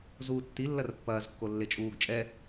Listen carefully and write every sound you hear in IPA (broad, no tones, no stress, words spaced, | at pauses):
zuːtːi lːɐrpːɐːzkːo lːet͡ʃʼuːɡ t͡ʃʼɛ